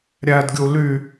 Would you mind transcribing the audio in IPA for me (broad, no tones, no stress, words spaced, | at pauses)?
ɾʲædɡʲu ly